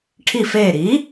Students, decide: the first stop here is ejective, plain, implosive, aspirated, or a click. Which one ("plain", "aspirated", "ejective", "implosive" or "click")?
aspirated